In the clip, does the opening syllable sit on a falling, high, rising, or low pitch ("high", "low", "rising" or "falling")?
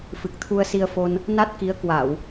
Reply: low